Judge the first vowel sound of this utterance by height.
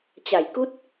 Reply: low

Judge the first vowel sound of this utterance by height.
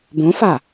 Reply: mid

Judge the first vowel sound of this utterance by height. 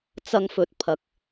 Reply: low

